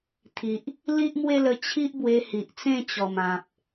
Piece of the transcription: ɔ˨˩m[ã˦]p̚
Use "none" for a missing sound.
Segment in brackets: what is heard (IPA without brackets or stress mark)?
ã˨